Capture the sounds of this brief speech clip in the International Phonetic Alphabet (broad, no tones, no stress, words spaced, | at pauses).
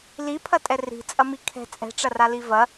lipʰɐtʼɛ ri̤t͡sʼɐmi kʰɛ̤ t͡sʼɛ̤ʈ͡ʂɐrali vɐ